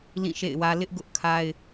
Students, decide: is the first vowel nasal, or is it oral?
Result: nasal